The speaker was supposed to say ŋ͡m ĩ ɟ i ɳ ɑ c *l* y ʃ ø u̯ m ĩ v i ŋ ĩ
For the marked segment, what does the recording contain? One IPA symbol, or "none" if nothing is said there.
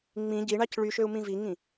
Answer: ɭ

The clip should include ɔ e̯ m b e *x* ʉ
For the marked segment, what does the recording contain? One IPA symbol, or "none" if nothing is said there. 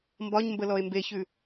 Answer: ç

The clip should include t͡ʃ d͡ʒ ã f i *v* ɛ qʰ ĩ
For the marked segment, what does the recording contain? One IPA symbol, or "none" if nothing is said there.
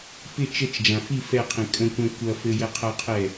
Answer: f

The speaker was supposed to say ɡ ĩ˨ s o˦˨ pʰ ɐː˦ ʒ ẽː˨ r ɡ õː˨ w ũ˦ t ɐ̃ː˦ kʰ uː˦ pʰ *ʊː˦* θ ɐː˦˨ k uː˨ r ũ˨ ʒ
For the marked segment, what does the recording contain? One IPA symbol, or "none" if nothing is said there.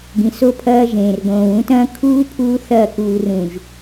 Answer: uː˦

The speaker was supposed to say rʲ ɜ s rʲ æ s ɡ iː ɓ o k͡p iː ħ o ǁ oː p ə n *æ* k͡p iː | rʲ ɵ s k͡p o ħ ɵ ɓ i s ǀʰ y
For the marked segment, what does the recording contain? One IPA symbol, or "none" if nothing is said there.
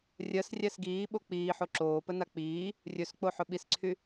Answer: a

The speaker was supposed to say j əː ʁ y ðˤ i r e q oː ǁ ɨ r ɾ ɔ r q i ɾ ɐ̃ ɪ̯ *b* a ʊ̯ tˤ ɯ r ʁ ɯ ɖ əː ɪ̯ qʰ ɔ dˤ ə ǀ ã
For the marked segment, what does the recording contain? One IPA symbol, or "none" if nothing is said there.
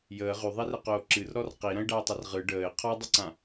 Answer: ɖ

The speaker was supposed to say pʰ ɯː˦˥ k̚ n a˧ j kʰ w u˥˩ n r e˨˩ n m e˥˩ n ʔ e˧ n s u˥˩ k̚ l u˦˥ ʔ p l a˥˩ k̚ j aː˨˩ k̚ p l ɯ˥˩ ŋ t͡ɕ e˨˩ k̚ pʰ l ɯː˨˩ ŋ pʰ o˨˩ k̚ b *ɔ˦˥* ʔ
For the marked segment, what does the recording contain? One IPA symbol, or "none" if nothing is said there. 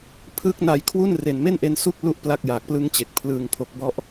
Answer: ɔ˦˥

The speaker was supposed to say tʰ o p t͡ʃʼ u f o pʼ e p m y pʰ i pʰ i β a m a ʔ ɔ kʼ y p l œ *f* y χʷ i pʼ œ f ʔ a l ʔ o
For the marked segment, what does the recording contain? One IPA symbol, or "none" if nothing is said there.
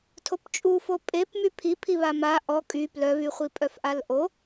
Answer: β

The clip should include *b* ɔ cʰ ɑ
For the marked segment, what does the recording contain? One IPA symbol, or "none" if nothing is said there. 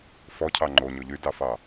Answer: f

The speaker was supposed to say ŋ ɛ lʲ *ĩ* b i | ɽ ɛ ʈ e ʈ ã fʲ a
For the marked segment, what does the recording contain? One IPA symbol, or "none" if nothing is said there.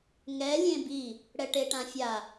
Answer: ẽ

